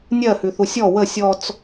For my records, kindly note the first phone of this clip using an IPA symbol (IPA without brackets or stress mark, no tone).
nʲ